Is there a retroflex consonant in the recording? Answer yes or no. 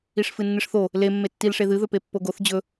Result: yes